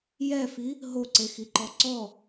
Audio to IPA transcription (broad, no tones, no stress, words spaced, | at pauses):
jɛfi | ɦoǀexiǃɔ ǀɔ